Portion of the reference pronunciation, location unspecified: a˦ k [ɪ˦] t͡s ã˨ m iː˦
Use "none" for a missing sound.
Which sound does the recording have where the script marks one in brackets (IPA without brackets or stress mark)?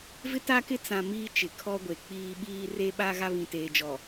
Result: ɪ˦